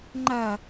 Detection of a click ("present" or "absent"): present